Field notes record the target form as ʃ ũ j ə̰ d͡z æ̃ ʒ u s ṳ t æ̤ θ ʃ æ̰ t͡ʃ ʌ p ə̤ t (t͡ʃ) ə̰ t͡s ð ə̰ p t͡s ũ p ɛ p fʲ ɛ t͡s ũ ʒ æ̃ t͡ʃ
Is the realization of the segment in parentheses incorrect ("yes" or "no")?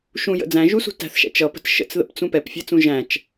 yes